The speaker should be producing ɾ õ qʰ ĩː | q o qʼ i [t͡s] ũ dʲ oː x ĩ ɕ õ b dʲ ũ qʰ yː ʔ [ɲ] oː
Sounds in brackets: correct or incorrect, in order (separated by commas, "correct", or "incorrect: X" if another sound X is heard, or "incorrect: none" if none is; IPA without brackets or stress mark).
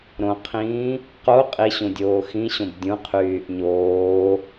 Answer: incorrect: ɕ, correct